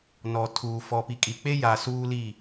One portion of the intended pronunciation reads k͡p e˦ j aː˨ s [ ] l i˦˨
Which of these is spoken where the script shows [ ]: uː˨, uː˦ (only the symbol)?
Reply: uː˦